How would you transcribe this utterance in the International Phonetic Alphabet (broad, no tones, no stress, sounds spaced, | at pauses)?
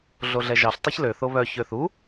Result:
ɮ o ɮ ɛ ʒ ɑ ɬ tˤ e ç l ø θ o β œ ç ø θ u